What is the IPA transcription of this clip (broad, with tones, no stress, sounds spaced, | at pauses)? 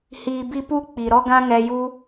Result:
h iː˧ b i˦ p u˦ k͡p i˨ ɾ ɔ˦ ɡ ã˦ ŋ ɛ˧ j u˦